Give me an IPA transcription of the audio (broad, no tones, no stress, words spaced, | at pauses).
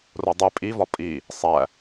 rodˤe pʼivɒ pʼi | sˤæ